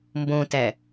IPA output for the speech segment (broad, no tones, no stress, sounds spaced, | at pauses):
m b õ t æ